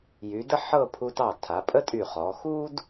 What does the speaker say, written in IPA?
j y˩˧ d ə˥ ħ ɤ˥˧ pʰ u˧ t ɑ˧˩ tʰ a˩˧ pʼ ə˥ tʼ y˧˩ χ ɔ˩˧ x u˥ d

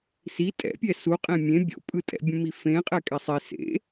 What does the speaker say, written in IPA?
s i tʼ ɛ̰ pʲ ɛ s u qʼ ẽ mʲ ẽ bʲ o̰ pʼ ɯ tʼ ɛ̰ bʲ ũ m i f ẽ qʼ ɛ kʼ ɛ sˤ i s ḛ

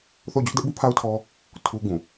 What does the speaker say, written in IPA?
θ o˦˨ ʊ̯ d͡ʑ ʊ˦ ʔ d ɛ˦ ʔ b u˦ pʰ a˦ ʊ̯ tʰ ɔ˦ | tʰ u˦ ɡ ũ˨

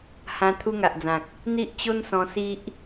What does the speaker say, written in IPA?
h ã˧ t̪ʰ u˧ ŋ a˨ ʔ d͡z ã˨ k̚ | n̪ i˦ ʔ t͡ɕ o˦ n s ɔ̃˧ s i˦ ʔ

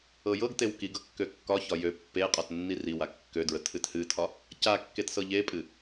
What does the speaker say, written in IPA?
ɤ j ɤ ɡ t e w k i ɡ ɤ kː ø kː ɒ ç ɒ j ø pː e qʼ ɒ t nː i r i w a kː ø d ɹ ə tʰ ɨ t h ɨ tʰ ɒ | c a kː e t s ɤ ʎ e pʼ ɨ

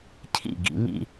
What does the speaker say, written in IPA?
cʰ ḭ˥˩ ɡ ḭ˧ ŋ ḭ˥˧

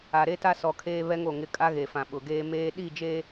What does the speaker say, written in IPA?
a˨ ɾ e˦ t a˦ s ɔ˨ kʰ eː˦ β ɛ˦ ŋ o˦˨ ŋ ɪ˦˨ kʼ a˦ ɣ e˨ f ã˨ ɓ ʊ˨ ɡ eː˦ m eː˦ ɗ i˦˨ d͡ʒ e˦

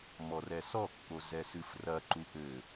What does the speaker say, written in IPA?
m ɔ r ɛ s ɔ kː o z ɛ s ɨ f r ɐ ǃ u ʔ ɘ

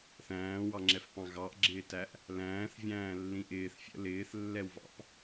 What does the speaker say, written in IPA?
θ æ̃ː w ɑ ŋ͡ǁ ɛ f p ɑ̃ ɣ ɑ ʔ ɡ͡ǁ ɪː t æ ʔ | l æ̃ː θ vʲ æ̃ː lː ĩ ʔ ɪː θ fʲ ə̰ l ɪː θ lː ɛ w v ɑ̰ p

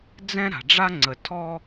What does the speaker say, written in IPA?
d͡z ɛ̃˦ ɾ a̤˨ ɖ͡ʐ a˦ ŋ͡ǀ ə˨ tʰ ɔ˦

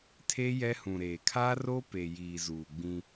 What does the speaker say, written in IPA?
tʰ e˦ j ɛ˦ h ũ˨ ɾ eː˨ kʰ aː˦ r oː˦ p e˨ j iː˨ z uː˨ ɡ͡b ĩ˦

